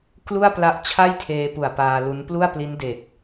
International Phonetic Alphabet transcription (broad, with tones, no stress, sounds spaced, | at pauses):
k l u˥˩ a̯ p l a˦˥ ʔ t͡ɕʰ a˥˩ j tʰ eː˧ p u˨˩ a̯ p aː˧ l u˦˥ n p l u˥˩ a̯ p l i˦˥ n d e˨˩ k̚